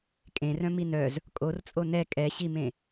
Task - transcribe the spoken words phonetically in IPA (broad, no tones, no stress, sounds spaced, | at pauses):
kʼ ẽ r œ̃ m i n œ z | kʼ o r t͡sʼ o n ɛ kʼ ɛ ɕ i m ẽ